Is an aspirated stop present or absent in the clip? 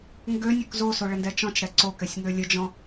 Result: absent